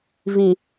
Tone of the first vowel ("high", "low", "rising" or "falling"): low